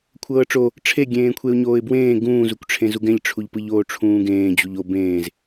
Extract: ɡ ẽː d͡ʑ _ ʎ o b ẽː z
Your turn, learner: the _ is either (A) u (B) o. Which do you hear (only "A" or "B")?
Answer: A